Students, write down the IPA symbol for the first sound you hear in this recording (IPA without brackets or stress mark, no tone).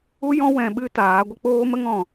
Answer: u